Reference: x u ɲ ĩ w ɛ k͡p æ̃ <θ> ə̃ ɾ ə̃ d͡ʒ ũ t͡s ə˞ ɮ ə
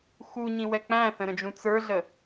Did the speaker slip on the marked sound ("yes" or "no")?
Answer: no